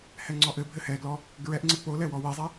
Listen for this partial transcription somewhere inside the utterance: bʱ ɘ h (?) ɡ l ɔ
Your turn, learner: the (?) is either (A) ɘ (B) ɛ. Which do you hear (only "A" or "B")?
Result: B